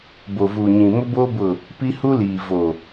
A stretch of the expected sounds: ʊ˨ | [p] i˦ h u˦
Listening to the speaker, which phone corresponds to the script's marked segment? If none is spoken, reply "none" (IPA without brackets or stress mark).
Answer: p